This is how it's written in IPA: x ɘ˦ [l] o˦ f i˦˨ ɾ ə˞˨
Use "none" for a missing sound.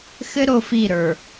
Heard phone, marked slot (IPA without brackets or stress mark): ɾ